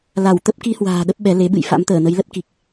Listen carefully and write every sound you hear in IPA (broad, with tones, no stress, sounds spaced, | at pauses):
l a˧˩ w t̪ ə˦˥ p̚ k i˧ h w a̤ː˨˩ ɗ ə˦˥ p̚ ɓ ɛ˨˦ l e˨˦ ɓ ɨ̰˧˨ j f a̰˧˥ m t̪ əː˧˩ n ə˨˦ j l ə˦˥ t̚ k i˨˩ k̚